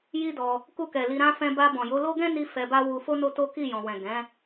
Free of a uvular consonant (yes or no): yes